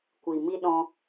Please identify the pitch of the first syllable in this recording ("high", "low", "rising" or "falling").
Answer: low